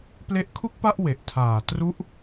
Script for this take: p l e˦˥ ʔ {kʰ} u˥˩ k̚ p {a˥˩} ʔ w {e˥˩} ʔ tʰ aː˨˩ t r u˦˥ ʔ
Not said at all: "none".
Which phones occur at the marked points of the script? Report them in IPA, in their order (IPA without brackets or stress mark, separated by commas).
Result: kʰ, a˥˩, e˨˩